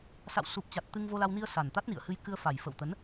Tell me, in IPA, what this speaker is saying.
sa̰˧˨wsu˨˩p̚t͡ɕa˨˩t̚ t̪ɨ˧ŋvo˧la˧wni˧ə̯ sa˨˩nt̪a˦˥t̚nḭ˧˨ə̯hɨ˧j kɨ˧ə̯fa˨˩j fə̰˧˨wt̪ə˨˦n

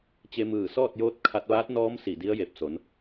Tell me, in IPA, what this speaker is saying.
t͡ɕe˧mɯː˧˩sɔː˥˨t̚joː˧˥t̚ kʰa˧t̚ʋaː˧˥t̚nɔː˧˥m si˧˩di˧˥ə̯je˧˩p̚so˩˧n

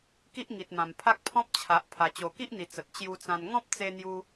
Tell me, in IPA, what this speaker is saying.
ki˦ʔŋi˨t̚mã˨˩m pʰa˦k̚pʰɔ̃˦p̚t͡ɕʰa˨ʔ pʰa˨˩t͡ɕo˨˩ki˦ʔn̪i˨˩ t͡sə˨t̚ t͡ɕju˧t͡sã˧n ŋɔ̃˦p̚t͡se˧n̪ju˧

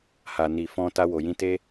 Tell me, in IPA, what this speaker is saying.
ha˨ ni˨fɔ̃˧ ta˧wo˨jĩ˧te˦

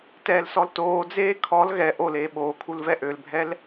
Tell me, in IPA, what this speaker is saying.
tɛːlsɔltoːd͡zeː kʰɔl ɣɛ ʔoleː ɓoːkʰul vɛʔølbʱɛl

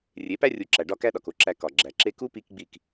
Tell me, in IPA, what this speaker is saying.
rʲe˨˦pæ˦rʲu˨˦ǁæ˨ ɖɒ˧ kæ˦ɗɒ˨ko˦ǁæ˧ kɒ˨ɡ͡ǁæ˨ǁe˦ ku˦ pi˦k ɡ͡bi˦˨k

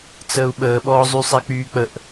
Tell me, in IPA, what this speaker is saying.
t͡səːu̯ɓəːɓɔːzˤy sˤɛk͡pyːk͡pəʔ

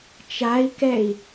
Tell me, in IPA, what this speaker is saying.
t͡ʃai̯kɛi̯

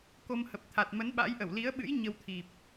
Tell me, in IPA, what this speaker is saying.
ko˧m hə˨˩p̚t̪ʰa˨˩t̚ mə˨˦nɓa̰˧˥jʔə˧˩w li˨˦ə̯ɓɨ̰˧˥j ɲə˧wt̪ʰi˨˩p̚

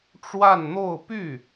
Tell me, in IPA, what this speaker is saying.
ʈ͡ʂwa˥˧nn̪o˥˧ʊ̯py˥˩

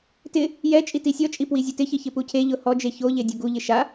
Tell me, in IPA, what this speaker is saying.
tɪ | jɛ t͡ʃʼitisʲɔt͡ʃʼi pwizʲʊtɪçɪ çɪpucʰeʎʊ hɔd͡ʒe çoʎe dʲoɡuʎɪ ʃa

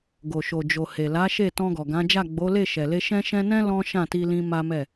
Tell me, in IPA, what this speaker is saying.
ɡo˨ ʃo˨d͡ʒo˨he˨ la˨˦ʃe˦˨ tɔ̃˧ɡɔ˨ɡã˨˦d͡ʒa˦˨ ɡ͡bo˨˦le˦˨ʃɛ˨le˧ ʃɛ̃˦ʃɛ̃˦ nɛ̃˦ lɔ̃˦ ʃã˦˨ti˧lĩ˧ ma˦mɛ˦˨

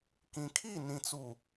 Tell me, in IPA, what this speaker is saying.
kĩ˨kʰi˦˨nĩ˨t͡su˨

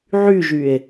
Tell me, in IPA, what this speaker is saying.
ʕyʒye̯

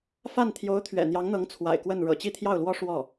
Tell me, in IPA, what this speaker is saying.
fa˥˩n t̪ʰjo˧˥ʊ̯t̪ʰɥɛ̰˨˩ n̪jɑ˧˥ŋn̪ɤ˧˥ŋ t͡sʰwa̰˨˩ɪ̯kwə˥˩n ɻɤ̰˨˩t͡ɕi˥˧t̪ʰjɑ˥˩ʊ̯lwɔ˥ ʂwɔ˥˩

